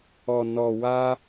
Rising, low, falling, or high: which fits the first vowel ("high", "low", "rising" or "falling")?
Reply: low